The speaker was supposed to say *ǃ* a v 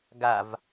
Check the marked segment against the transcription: incorrect: ɡ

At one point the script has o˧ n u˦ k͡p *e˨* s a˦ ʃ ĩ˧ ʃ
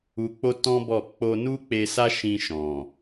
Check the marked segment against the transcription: incorrect: e˧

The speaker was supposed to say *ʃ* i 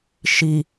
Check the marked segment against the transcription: correct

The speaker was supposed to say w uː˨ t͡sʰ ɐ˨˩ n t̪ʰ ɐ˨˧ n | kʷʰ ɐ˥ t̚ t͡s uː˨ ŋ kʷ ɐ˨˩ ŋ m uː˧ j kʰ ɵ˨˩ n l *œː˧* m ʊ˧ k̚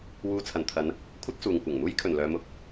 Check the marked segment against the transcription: incorrect: œː˨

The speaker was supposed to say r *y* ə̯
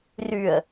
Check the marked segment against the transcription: correct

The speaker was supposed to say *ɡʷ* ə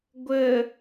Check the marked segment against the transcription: correct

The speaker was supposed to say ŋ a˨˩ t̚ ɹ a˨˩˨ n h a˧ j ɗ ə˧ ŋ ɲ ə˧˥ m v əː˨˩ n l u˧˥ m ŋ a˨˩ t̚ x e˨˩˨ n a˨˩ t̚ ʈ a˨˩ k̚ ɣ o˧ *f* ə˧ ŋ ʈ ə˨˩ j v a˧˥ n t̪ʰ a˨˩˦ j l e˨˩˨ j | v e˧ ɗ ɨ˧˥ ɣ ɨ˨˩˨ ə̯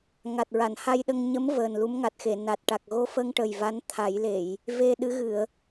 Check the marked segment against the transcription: correct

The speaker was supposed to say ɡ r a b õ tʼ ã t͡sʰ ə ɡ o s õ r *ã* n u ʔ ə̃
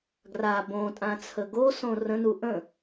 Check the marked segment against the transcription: incorrect: ə̃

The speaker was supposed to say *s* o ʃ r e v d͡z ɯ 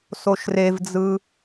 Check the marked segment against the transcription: correct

